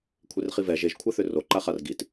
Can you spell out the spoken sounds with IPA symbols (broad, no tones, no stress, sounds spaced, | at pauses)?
kʷʰ e r χ i v ɛ ʒ e ʒ kʷʰ ɛ θ ʏ r o ǃ a χ a r ɡ i t